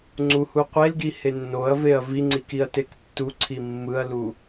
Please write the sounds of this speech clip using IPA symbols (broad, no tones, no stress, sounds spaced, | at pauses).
ŋ͡ǀ u h u qʷ e l ɡ i h e nː o ɐ̯ v e ɐ̯ v i ŋ͡ǀ i k i ɐ̯ t e k tː u ǀʰ i mː ɯ ɐ̯ l u